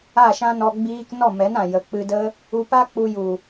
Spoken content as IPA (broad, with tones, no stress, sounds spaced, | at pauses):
a˦˨ ʃ ã˦ n ɔ˧ ɡ͡b iː˧ k n ɔ˦˨ m ɛ˨˦ n ã˨ j ə˨ k͡p ɨ˧ d ə˦ | u˧ p a˦ k͡p u˧ j u˨